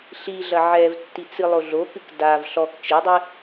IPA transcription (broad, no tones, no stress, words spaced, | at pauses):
ɬiɮɐ ʕɛvtːit͡sɨ lˠoɮokɨk dav ɬɔk t͡ʃedˤɨ